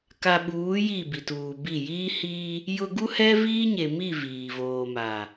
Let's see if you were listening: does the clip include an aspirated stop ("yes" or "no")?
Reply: no